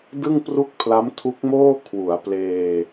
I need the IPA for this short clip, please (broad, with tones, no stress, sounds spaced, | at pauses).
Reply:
d ɯ˥˩ ŋ p r u˥˩ k̚ pʰ l a˦˥ m tʰ u˦˥ k̚ m oː˥˩ kʰ w u˩˦ a̯ p l eː˧